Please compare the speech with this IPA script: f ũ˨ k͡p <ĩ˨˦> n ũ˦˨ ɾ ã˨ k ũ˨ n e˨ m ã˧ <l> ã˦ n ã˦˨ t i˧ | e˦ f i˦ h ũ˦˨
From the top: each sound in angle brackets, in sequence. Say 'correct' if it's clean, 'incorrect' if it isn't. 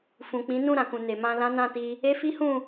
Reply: correct, correct

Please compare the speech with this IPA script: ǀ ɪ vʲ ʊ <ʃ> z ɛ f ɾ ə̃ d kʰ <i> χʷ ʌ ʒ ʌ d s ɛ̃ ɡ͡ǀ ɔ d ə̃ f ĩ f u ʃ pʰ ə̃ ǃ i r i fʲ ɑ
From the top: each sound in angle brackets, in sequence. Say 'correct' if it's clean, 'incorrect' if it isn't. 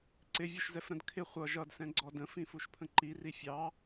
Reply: correct, incorrect: ɪ

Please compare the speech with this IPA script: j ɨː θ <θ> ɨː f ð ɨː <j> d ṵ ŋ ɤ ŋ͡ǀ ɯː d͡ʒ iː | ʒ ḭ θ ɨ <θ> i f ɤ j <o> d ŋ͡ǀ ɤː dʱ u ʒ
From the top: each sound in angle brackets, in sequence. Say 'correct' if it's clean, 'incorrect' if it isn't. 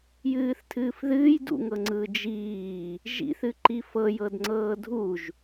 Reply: incorrect: tʰ, correct, incorrect: ǃ, incorrect: ɤ

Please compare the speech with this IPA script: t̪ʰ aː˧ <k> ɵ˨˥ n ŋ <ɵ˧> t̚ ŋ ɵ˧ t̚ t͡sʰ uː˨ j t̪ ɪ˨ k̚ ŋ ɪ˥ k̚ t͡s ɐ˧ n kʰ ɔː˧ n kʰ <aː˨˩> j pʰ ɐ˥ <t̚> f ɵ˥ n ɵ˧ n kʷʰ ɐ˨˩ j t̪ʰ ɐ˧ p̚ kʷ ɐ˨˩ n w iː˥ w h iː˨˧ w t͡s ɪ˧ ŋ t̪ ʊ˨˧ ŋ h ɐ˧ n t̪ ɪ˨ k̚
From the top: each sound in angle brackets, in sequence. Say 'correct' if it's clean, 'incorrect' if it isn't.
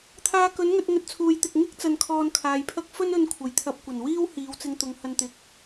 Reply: correct, correct, incorrect: aː˨, incorrect: k̚

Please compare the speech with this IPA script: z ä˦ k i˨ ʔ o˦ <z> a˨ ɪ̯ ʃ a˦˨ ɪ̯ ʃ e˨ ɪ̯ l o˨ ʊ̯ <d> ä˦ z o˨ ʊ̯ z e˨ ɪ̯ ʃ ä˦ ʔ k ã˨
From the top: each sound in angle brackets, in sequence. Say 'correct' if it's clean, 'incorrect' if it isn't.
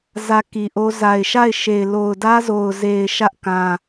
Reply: correct, correct

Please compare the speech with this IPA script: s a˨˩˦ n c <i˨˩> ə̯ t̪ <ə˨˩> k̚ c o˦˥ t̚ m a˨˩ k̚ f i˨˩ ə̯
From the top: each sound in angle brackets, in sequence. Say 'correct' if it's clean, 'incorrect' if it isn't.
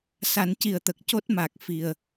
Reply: correct, correct

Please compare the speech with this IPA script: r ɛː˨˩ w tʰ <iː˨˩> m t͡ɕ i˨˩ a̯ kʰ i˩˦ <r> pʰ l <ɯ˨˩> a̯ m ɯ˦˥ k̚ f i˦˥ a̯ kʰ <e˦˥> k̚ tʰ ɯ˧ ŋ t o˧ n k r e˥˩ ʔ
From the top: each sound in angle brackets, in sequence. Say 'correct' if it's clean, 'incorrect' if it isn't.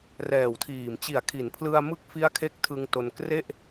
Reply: correct, incorrect: n, incorrect: ɯ˧, correct

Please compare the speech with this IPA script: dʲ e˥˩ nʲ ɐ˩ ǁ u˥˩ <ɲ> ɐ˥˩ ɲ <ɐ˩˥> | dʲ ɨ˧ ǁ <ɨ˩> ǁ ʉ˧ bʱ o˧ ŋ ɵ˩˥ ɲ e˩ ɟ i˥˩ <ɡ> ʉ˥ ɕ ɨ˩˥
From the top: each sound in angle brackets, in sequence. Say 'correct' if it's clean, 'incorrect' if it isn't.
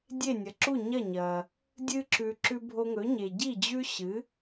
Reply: correct, incorrect: ɐ˩, incorrect: ʉ˩, incorrect: d͡ʑ

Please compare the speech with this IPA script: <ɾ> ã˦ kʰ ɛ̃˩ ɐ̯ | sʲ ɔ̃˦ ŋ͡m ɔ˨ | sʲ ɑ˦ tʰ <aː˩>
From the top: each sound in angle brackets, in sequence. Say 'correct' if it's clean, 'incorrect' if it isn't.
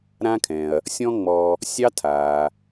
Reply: correct, correct

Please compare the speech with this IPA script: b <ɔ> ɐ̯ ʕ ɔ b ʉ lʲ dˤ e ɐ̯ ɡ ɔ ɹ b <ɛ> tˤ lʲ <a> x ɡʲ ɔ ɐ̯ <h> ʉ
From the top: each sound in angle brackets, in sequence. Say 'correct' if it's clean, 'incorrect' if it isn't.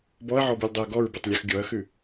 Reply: correct, correct, correct, incorrect: x

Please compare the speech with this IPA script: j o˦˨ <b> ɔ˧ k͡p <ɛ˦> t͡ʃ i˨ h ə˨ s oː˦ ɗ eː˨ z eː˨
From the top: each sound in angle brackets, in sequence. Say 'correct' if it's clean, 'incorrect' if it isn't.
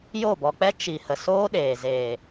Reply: correct, correct

